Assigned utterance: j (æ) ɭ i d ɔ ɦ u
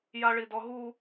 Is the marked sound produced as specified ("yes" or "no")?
no